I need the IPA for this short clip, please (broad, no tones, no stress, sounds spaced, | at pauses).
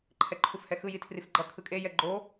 ǃʰ ɛ ǃʰ u f h ɛ x ɯ j i tʰ r i f ɡ͡ǃ ʌ kʰ ɯ kʼ e j ɛ ɡ͡ǃ o